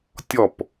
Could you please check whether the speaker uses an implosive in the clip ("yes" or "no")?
no